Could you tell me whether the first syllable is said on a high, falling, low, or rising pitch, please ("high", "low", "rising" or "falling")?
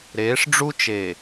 rising